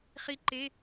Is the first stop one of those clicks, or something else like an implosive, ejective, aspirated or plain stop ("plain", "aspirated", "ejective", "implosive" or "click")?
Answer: click